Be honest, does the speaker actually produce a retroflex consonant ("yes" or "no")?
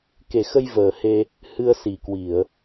no